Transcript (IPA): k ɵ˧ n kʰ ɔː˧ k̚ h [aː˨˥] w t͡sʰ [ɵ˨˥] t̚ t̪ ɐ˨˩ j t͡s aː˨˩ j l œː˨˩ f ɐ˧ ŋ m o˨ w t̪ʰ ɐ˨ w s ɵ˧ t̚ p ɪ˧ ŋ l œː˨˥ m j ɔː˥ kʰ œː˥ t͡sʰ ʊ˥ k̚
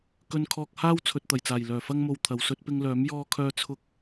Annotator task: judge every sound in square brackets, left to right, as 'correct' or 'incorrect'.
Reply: incorrect: aː˥, incorrect: ɵ˨

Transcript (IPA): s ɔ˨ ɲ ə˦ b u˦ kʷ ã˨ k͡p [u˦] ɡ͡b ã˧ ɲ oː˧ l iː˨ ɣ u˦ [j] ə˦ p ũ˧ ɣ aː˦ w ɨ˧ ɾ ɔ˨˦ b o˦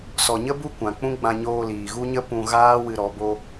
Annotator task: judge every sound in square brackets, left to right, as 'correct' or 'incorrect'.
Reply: incorrect: ũ˦, incorrect: ɲ

